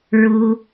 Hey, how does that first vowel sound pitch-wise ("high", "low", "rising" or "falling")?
high